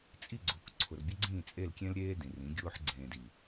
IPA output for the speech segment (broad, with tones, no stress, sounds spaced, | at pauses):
t͡sʼ i˦˨ ɡ͡ǀ ʊː˨ k ǀʰ ʊ˨ r bʲ ʊ˦ ɡ͡ǀ ĩː˦˨ t͡sʼ e˦˨ l kʲ ẽ˦ l ɾʲ eː˦ d ĩ˨ r ĩ˨˦ ɡʲ ʊː˦ ħ ɡ͡ǀ ẽː˨ d i˨